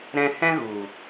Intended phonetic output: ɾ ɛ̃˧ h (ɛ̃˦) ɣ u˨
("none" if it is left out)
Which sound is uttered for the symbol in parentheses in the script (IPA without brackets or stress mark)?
ɛ̃˦